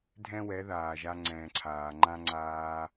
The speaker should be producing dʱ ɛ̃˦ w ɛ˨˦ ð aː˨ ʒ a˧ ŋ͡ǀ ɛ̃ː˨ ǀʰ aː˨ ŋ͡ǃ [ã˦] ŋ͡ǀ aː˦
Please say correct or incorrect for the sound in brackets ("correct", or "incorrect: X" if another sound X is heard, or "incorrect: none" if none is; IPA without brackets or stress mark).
correct